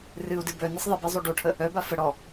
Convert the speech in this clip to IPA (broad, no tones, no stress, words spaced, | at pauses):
rɨu̯dɨ bœ nisˤðˤibi zˤoɖoʈʰə | œba fə ɽɔ